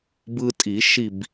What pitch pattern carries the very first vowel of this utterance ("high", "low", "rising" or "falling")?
high